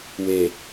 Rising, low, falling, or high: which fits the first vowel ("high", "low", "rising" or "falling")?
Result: low